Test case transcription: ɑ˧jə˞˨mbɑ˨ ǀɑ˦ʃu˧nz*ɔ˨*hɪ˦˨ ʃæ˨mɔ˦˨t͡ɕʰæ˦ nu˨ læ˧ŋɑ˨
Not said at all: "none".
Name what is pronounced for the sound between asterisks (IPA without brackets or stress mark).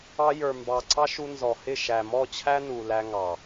ɔ˨